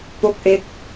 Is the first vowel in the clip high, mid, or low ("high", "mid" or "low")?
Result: mid